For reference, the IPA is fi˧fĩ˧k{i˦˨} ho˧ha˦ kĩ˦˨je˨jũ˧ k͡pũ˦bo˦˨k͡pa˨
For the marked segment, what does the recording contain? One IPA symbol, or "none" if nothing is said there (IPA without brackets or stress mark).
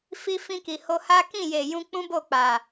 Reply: i˨